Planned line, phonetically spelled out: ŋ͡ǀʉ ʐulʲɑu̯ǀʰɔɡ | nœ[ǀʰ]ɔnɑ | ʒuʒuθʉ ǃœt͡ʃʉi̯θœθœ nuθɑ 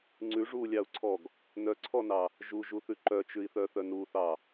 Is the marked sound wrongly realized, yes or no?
no